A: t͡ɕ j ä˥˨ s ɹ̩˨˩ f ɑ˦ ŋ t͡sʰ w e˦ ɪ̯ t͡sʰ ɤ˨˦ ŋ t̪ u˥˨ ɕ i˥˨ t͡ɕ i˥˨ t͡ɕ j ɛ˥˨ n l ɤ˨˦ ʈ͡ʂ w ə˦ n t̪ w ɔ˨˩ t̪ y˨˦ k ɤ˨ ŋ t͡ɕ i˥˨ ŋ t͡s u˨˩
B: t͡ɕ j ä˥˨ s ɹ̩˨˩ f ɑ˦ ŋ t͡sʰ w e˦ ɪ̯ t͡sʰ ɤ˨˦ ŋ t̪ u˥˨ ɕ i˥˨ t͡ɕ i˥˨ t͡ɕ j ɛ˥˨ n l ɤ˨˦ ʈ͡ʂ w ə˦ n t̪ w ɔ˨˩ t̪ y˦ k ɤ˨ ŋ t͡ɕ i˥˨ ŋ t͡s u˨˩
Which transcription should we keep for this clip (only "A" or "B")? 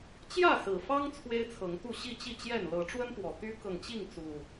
B